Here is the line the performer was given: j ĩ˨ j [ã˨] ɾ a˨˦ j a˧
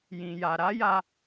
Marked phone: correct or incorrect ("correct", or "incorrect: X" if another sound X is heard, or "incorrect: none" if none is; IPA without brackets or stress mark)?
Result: incorrect: a˨